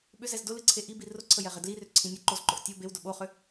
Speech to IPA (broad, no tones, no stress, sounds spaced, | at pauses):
ɓ ʏ z ɛ z d ʊ l ɨ ǀʰ e ʔ i b i r ʊ ǀʰ ə j ɛ ʁ ɛ d l i r ʏ ǀʰ ĩ nʲ ə ǃ o z ǃ ʊ ʔ tʲ o b e w d ʊ ɓ o χ ʏ